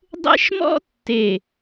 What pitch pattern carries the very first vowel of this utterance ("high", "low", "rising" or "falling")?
high